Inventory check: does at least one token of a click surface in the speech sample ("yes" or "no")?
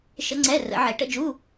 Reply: yes